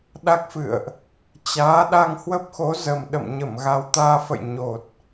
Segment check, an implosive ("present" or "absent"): present